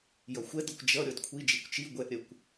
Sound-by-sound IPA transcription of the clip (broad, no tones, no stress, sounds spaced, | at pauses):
j ʌ xʷ ɛ d ʌ kʷ d͡ʒ ʌ ɾʲ ɔ d kʷʰ i d͡ʒ i kʷ t͡ʃ i ɡʷ ɛ ʔ ɾʲ ɜ kʷ